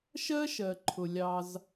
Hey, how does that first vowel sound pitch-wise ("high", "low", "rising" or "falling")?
high